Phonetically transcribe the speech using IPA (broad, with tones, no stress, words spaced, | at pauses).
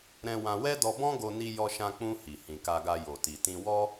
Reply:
ɾɛ̃˧wã˧wɛ˦ dɔ˧bɔ̃˦ɡo˧ni˧ jɔ˧ʃã˧k͡pũ˧ hi˨hĩ˨ka˧ɡa˧ jo˨ti˨tĩ˧ wɔ˦